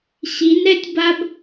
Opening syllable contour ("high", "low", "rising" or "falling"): rising